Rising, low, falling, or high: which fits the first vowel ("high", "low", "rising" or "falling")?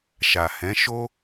low